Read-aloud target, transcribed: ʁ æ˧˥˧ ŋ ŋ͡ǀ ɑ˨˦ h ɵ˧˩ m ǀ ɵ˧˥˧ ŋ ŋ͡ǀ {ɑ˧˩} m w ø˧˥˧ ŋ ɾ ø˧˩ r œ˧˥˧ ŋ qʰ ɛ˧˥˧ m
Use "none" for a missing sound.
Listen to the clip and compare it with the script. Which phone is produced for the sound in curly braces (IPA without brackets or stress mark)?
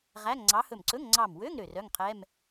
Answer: ɑ˧˩